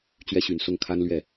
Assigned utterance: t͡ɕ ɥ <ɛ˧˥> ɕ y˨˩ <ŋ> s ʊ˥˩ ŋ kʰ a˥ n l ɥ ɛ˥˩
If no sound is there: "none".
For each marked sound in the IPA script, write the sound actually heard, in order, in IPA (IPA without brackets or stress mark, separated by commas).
ɛ˥, n